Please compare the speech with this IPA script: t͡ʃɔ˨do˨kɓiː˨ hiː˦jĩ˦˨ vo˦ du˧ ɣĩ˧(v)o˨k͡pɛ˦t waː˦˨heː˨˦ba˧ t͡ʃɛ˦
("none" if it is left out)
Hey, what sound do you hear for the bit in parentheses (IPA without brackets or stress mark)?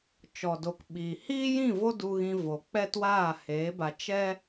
v